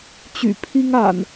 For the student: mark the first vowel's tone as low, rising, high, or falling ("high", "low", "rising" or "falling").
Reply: low